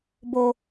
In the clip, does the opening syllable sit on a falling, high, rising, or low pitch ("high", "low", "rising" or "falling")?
low